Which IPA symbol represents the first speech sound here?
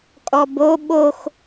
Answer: kʼ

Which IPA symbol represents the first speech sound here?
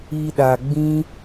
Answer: i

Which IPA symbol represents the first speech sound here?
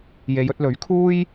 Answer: j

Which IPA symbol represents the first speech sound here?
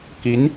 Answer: k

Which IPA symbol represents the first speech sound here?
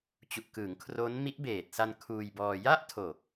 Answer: t͡ɕ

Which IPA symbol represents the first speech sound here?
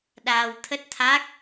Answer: ɗ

